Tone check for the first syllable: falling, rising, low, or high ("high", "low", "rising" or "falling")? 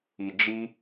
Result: low